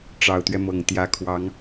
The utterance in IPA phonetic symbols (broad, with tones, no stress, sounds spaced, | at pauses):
ʈ͡ʂ ɑ˨˩ ʊ̯ t̪ ɥ ɛ˦ m ɤ˨˩ ŋ t̪ j ä˨˦ kʰ w ɑ˨˦ ŋ